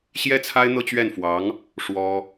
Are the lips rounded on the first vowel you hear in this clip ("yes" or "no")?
no